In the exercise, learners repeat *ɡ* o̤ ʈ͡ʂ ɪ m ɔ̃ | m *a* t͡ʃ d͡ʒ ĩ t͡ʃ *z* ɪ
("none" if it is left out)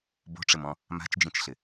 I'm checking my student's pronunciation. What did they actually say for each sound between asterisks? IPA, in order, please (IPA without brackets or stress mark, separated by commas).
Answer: b, a̤, ɬ